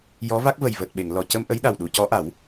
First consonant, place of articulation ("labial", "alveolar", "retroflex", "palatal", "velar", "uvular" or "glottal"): palatal